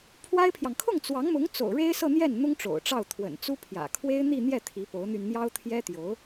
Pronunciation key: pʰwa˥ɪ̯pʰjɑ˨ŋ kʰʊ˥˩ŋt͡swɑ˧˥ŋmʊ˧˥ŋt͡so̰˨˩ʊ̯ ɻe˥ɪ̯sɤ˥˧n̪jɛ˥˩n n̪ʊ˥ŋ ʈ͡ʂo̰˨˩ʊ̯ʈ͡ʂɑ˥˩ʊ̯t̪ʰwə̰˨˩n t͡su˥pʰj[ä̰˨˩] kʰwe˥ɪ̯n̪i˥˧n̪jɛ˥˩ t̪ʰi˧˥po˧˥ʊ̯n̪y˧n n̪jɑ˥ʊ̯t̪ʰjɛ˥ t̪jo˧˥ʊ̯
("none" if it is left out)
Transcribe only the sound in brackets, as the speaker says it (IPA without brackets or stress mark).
ä̰˨˩